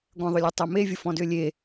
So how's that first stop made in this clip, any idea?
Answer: plain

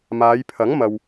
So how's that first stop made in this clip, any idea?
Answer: aspirated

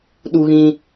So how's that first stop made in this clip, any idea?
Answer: implosive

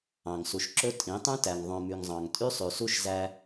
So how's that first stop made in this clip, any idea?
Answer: click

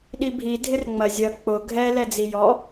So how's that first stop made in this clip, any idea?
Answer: implosive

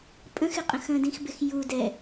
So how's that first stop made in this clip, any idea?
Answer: ejective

